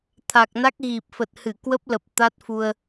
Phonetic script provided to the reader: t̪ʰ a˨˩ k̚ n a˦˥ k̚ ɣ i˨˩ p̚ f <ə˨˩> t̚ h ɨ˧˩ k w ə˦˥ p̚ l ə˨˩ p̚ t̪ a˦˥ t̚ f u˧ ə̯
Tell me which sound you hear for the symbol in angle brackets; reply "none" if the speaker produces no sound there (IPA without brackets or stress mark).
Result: ə˨˩